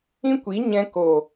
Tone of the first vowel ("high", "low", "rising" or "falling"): high